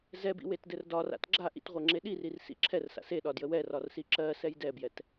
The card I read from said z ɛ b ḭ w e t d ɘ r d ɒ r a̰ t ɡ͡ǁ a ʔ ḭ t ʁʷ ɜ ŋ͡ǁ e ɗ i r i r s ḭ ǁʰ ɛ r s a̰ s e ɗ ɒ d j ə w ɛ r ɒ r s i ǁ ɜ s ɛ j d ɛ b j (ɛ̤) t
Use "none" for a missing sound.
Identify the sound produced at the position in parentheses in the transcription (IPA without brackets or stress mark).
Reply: ɛ